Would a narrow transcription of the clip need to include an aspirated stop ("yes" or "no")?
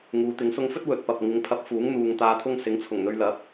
yes